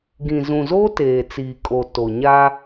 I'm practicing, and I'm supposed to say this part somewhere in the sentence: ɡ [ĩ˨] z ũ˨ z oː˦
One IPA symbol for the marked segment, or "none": ĩ˨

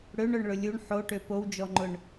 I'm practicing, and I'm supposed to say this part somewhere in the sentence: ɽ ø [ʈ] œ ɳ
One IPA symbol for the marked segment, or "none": ɳ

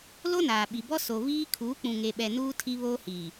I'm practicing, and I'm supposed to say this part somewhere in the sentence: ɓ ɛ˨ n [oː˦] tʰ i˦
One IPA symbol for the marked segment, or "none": uː˦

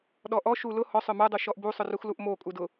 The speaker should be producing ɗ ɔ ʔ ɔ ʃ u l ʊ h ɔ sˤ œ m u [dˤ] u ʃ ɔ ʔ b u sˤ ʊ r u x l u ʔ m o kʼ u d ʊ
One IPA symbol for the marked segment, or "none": dˤ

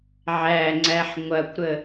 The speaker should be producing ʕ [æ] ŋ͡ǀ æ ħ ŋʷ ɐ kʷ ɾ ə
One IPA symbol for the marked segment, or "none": æ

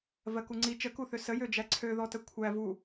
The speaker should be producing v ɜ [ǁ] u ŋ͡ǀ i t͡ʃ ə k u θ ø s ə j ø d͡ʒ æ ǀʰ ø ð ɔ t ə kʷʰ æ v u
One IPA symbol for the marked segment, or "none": k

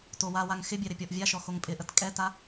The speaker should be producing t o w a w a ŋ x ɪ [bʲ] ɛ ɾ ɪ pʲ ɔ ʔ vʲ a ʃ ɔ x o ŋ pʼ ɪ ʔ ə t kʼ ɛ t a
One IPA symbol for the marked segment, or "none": bʲ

